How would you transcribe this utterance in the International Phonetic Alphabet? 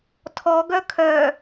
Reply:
tʰ ɔ ɡ œ kʰ œ

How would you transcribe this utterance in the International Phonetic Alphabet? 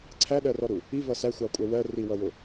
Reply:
ǀʰ æ ɗ ɜ r ɔ ɾ u | i v ʌ s æ xʷ ɑ kʷʼ ɛ w ɜ r i w ʌ w ʊ

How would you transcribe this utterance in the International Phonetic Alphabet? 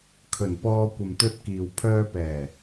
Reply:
kʰ ɵ˨˩ n p ɔː˧ kʷ ɐ˨ m t̪ ɵ˧ t̚ k iː˨ w pʰ œː˧ p ɛː˨˩

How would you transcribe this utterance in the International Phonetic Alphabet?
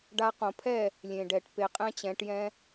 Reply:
ɖ a˧ q õ˨ pʰ ɛ˦˨ | lʲ ẽ˨ ɖ ɛ˨ ʈ p e˧ qʼ ɛ̃˦ t͡ɕ ɛ̃˨˦ ʈ j ɛ̃˦

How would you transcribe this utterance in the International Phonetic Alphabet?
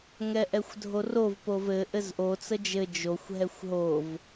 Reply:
ŋ ɛ ʔ ɛ xʷ dʱ o r o v p o v ɘ ʔ ɘ z ʔ o t͡s ə d͡ʒ ɘ d͡ʒ o xʷ ɦ ɛ xʷ ɦ o v

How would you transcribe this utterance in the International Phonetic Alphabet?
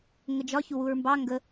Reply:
ŋ ə d͡ʒ ɒ ç u w u ɹ m b ɑ ŋ ɡ ə

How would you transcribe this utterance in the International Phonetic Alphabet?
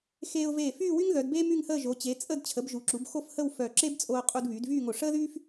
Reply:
x eː˧ ʊ̯ v eː˧˩ f yː˥˧ w y˥ ŋ ð œ˩˧ d b eː˥ m y˥˧ ŋ h əː˥˧ ʒ o˩˧ t͡ɕ e˩˧ t͡sʼ ə˥˧ d t͡ɕʰ ə˩˧ b ʒ u˩˧ ǁ u˩˧ b x o˥˧ f h ə˥˧ w f œ˧˩ ǁ e˥ b t͡sʼ oː˧ qʼ u˧ d β yː˩˧ d v yː˥˧ ŋ o˧˩ ʂ əː˥ ð yː˥ f

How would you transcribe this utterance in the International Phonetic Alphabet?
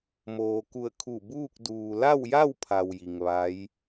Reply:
m oː˩ k u˧˩ ə̯ kʰ u˧˩ b uː˥˨ k̚ d uː˩ l a˥˨ w j a˥˨ w pʰ a˩ w j i˩ ŋ ʋ a˧˥ j

